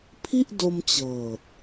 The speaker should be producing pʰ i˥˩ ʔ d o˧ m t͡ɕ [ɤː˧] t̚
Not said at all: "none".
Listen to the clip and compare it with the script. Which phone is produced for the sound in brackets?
ɤː˨˩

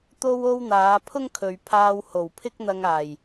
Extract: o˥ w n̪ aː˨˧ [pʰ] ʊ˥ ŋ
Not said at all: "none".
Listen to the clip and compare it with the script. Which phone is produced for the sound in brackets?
pʰ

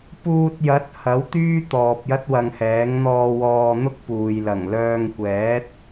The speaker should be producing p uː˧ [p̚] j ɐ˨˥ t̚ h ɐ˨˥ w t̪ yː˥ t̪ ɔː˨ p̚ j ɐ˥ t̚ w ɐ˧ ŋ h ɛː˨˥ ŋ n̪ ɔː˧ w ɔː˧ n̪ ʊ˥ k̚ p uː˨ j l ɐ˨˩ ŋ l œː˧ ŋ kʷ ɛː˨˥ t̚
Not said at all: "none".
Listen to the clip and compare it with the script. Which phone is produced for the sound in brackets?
t̚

